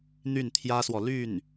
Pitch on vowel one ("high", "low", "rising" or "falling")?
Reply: falling